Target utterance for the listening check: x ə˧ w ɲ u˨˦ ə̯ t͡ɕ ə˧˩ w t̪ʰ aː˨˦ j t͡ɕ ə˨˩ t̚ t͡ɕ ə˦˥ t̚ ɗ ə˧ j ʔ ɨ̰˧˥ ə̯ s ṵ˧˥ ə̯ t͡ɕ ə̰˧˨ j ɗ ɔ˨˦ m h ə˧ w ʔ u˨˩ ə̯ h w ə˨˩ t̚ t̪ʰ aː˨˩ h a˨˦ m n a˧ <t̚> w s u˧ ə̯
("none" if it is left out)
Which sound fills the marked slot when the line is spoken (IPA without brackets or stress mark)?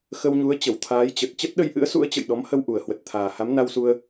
none